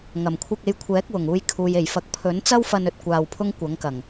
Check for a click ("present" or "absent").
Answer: absent